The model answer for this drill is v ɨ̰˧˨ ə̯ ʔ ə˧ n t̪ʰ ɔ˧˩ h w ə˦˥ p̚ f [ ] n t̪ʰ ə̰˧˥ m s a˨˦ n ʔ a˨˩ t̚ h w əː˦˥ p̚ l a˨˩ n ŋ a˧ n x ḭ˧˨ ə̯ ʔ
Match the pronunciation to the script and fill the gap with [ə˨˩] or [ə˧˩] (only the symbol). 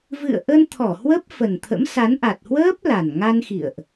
ə˨˩